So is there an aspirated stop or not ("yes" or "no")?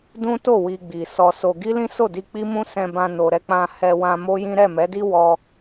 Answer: no